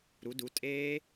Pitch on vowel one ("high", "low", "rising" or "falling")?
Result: rising